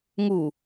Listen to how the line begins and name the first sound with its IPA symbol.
ŋ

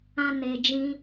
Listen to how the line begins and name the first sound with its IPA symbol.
ã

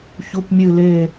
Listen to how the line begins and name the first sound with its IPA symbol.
ç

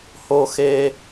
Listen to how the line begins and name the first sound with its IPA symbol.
h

